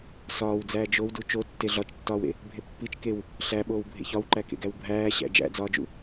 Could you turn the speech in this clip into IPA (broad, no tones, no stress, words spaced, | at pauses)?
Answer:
sɒːwd͡zæː d͡ʒowdu t͡ʃotːe ɮɒt͡ʃtːɒːwḛ | bʱepːit͡ʃ kew | ɬæɓoːw bʱḛçɒwǃækḛ ɡæwbʱæːɕæ̰ d͡ʒæ̰d͡zɒːd͡ʒṵ